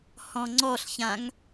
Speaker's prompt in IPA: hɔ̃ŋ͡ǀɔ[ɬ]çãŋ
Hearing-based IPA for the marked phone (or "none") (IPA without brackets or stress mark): ɬ